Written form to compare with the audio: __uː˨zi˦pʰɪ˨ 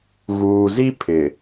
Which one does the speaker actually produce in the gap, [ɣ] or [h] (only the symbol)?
ɣ